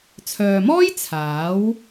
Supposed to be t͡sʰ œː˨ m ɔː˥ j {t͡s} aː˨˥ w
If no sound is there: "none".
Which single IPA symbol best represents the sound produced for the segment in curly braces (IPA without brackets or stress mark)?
t͡sʰ